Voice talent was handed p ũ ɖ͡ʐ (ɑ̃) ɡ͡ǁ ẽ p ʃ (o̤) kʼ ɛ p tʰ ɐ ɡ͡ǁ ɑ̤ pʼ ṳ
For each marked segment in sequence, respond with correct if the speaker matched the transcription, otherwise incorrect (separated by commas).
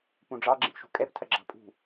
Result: incorrect, incorrect